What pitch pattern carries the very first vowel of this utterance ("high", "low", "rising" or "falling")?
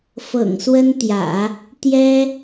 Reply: low